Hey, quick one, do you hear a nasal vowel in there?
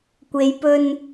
no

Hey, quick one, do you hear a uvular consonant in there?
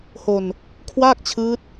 no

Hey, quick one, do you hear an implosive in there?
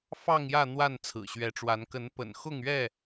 no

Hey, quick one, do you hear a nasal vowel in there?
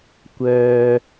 no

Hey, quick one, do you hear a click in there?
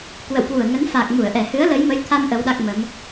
no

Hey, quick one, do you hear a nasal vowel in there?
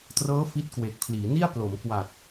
no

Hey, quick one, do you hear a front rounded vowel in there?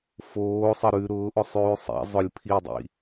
no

